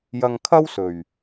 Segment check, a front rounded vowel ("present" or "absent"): absent